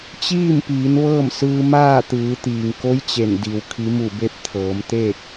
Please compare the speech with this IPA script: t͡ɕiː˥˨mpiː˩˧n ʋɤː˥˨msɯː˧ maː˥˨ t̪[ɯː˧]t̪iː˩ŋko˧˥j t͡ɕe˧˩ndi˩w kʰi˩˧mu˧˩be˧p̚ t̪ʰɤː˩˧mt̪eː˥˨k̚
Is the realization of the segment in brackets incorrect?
yes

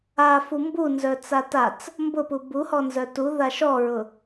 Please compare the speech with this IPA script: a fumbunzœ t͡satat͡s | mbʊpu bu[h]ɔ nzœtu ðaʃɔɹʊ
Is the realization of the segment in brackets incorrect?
no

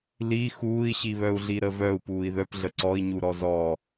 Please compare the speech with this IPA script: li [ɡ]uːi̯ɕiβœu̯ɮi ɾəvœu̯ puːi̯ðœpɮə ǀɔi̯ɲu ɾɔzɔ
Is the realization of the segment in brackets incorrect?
yes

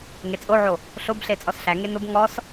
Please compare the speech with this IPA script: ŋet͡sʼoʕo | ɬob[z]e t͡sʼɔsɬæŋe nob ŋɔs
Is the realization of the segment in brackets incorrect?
yes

